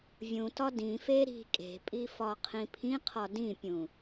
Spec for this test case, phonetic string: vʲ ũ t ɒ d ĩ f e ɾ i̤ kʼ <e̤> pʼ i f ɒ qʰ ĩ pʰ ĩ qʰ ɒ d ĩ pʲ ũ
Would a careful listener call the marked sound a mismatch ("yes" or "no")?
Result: no